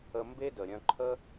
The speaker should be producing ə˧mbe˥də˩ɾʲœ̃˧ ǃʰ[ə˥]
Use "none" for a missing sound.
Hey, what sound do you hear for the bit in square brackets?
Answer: ə˥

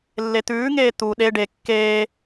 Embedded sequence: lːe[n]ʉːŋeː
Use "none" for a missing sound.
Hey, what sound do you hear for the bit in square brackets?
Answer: t̪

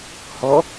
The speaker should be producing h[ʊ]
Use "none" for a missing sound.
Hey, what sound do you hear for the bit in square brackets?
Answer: ɔ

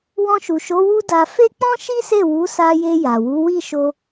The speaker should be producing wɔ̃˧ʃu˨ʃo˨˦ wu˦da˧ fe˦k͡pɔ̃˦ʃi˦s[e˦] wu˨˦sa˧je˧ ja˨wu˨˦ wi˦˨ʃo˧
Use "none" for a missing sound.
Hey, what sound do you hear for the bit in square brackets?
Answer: e˦˨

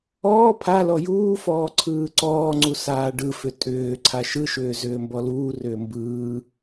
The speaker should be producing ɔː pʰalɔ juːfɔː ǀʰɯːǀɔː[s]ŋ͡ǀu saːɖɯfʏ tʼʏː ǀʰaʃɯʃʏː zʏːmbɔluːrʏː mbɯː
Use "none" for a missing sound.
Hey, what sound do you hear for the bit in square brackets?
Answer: none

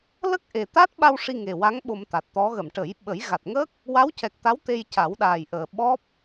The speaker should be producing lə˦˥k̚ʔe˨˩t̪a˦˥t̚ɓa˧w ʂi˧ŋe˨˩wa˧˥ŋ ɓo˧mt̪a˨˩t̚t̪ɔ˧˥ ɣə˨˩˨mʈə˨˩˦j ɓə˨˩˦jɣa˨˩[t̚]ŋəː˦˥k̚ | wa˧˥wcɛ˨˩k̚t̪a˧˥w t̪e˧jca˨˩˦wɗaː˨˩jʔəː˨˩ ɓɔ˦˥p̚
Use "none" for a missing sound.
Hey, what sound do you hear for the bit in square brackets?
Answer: t̚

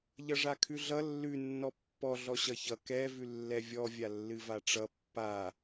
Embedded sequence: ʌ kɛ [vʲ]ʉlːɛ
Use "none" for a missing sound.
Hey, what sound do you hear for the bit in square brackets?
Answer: v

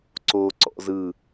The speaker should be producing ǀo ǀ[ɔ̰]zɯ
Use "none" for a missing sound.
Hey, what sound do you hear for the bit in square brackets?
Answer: ɔ̰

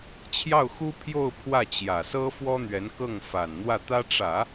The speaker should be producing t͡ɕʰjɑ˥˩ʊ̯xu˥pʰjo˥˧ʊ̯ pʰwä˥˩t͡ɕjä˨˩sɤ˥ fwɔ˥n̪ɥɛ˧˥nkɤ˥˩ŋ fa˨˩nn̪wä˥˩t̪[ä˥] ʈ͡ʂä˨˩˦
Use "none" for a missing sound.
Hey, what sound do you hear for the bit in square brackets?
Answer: ä˥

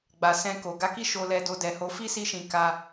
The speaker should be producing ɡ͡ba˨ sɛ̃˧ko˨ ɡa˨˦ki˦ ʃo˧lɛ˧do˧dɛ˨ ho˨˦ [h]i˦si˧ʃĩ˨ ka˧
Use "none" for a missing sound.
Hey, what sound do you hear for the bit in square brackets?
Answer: f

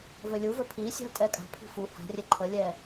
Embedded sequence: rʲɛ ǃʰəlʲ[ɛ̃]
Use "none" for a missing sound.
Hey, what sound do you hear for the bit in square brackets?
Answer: ɛ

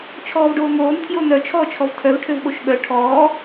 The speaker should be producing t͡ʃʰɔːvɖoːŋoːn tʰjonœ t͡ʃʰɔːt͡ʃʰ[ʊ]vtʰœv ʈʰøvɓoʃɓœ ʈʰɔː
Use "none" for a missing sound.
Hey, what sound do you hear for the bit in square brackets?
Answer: ɔ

